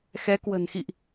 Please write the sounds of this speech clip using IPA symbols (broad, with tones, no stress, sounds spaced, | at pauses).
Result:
x ɛ˨˦ k w ə̤˨˩ n x ḭ˧˨ ʔ